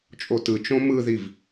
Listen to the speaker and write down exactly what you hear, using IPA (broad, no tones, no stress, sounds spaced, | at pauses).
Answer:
t͡ʃʼ o t ɯ t͡ʃ õ m ɯ ð i v